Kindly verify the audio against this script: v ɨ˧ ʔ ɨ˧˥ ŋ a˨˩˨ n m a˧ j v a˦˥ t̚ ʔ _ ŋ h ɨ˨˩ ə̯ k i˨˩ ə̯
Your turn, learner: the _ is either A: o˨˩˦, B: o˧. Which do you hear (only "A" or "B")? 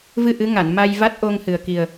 B